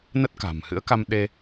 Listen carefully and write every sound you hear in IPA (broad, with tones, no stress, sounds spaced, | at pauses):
n ə˦˥ t̚ k a̤˨˩ m h ɨ̰˧˥ ə̯ k a˧ m ɗ e˧